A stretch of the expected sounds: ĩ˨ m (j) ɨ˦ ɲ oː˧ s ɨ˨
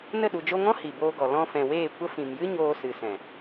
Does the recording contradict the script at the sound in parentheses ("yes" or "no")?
no